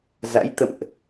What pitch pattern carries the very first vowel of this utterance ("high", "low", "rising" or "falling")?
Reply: rising